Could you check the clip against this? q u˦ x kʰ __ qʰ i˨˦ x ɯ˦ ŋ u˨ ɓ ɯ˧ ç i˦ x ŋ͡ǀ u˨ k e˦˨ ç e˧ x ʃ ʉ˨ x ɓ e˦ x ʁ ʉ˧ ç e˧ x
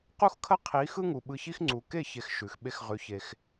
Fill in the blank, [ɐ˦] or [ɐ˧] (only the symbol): ɐ˦